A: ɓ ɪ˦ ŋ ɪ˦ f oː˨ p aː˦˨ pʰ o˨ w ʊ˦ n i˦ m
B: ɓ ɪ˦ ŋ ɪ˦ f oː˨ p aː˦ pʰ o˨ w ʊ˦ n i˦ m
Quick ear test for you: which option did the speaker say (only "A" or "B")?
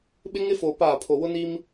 A